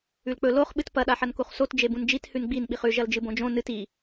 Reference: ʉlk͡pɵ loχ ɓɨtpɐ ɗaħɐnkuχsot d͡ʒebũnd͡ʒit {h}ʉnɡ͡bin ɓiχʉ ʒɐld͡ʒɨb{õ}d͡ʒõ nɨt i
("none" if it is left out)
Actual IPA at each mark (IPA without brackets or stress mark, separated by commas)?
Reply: h, õ